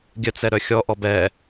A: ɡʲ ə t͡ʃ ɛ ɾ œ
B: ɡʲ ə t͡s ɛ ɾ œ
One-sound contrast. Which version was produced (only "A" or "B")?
B